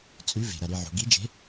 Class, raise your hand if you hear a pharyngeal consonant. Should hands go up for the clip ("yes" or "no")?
yes